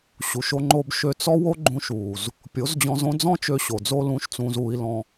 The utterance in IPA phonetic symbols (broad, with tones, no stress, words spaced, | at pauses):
ɕu˨ʃo˧ŋ͡ǃo˧b ʃø˧t͡sɔ˦ wo˦ɡ͡ǃũ˧ʃuː˨z | pʲo˨˦zd͡ʑɔ̃˧zõ˦ d͡zɔ̃˦t͡ʃø˧ ɕo˨d͡zo˦ lũː˧ʃt͡sũː˧z uː˧i̯lɔ̃˧